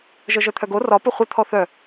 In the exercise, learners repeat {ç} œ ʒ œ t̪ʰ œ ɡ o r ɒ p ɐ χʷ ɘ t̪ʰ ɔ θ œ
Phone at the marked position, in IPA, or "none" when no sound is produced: ʒ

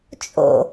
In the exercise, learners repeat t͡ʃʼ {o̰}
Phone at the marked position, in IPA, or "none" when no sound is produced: o̰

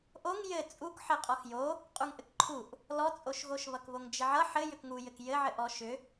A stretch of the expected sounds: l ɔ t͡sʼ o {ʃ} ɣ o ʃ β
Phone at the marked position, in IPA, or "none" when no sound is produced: ʃ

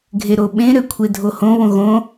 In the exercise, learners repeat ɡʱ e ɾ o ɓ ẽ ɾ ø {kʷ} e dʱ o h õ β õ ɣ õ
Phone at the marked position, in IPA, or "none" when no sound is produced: kʷʰ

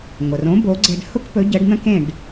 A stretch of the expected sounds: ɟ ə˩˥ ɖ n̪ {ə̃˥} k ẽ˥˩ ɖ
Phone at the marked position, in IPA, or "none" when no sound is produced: ə̃˥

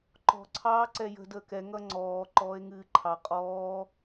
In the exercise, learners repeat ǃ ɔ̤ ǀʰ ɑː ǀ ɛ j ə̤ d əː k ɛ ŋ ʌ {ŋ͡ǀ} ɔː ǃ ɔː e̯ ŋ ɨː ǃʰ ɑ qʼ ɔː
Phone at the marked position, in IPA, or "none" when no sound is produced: ŋ͡ǀ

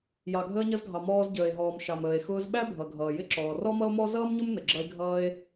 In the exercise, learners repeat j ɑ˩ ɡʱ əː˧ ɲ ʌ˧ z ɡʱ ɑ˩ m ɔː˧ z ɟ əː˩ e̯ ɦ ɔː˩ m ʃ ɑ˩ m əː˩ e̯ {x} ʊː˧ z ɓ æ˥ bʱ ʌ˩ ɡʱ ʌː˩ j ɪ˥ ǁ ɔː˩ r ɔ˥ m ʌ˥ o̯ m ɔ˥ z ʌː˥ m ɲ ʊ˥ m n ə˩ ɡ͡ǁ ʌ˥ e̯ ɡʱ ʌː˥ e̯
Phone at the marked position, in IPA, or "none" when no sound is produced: x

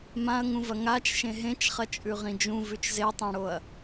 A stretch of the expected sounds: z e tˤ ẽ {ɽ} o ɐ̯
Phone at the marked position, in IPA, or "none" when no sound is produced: ɽ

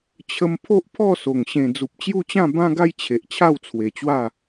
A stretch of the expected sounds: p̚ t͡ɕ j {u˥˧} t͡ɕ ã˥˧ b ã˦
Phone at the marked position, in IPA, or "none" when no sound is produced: u˥˧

